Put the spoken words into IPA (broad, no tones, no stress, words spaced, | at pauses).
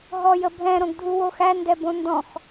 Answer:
ɦɔjəbʱɛ̃ ɾõɡdʱuwoxæ ndɛbõndɔ̃x